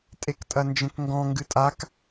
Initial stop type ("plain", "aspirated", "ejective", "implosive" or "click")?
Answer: ejective